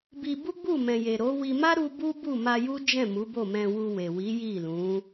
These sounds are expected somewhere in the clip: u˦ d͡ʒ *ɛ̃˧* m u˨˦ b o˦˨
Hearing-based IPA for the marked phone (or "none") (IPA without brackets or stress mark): ɛ̃˦˨